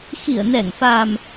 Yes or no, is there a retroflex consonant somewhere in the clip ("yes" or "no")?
no